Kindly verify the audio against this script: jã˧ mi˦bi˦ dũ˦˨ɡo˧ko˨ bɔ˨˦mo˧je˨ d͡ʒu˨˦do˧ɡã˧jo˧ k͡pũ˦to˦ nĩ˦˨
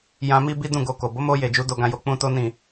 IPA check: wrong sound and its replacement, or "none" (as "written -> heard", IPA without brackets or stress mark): ɔ˨˦ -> o˨˦